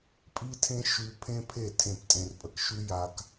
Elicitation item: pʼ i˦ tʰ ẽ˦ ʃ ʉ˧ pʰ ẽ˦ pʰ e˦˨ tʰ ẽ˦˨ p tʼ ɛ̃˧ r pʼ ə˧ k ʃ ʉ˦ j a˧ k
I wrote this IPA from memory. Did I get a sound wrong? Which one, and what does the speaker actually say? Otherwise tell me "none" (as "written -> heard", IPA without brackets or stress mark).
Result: ɛ̃˧ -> ẽ˧